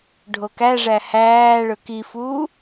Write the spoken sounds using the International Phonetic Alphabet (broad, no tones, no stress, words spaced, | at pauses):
ɖʱokæʐæ hæːɭɵ kifuː